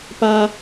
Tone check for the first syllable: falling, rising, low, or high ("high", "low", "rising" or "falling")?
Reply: high